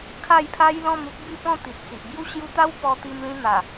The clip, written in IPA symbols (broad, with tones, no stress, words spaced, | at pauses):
kʰa˥˧jpʰa˦j lɔ̃˥˧mu˦k̚ bi˥˧pɔ̃˥˧ t̪i˨t̚t͡si˨ʔbju˦ ɕju˦ t̪a˦wpɔ˧t̪i˧mlĩ˧ n̪a˨˩